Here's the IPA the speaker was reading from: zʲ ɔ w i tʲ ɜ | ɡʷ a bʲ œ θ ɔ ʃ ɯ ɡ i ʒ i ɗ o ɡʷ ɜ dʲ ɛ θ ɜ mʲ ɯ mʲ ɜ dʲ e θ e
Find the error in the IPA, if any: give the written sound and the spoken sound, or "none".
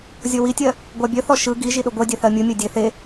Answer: none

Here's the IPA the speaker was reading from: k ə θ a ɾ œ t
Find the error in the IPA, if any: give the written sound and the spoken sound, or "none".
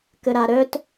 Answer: θ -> ɾ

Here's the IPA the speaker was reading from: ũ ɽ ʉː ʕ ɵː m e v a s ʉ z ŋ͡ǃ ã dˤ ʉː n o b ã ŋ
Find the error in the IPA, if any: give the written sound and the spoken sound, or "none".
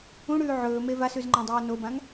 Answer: none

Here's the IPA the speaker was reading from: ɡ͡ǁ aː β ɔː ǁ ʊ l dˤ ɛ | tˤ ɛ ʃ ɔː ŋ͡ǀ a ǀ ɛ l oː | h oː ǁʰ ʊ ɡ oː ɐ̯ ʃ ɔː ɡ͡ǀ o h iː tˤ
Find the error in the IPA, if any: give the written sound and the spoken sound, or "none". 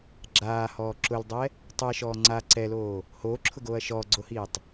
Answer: β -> h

